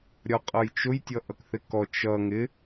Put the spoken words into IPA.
ɾʲɒqʼʌjt͡ʃʊj tʲʌʔʌkθɪkɔ t͡ʃʌ ŋɪ

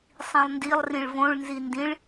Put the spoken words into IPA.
sˤĩlˠndilˠ rĩɭvõɭ nzindĩɭ

